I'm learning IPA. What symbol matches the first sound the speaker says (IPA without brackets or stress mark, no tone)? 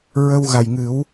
ɹ